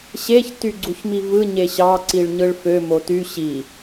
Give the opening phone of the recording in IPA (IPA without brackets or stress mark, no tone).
ɕ